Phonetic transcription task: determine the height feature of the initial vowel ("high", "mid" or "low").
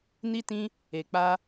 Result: high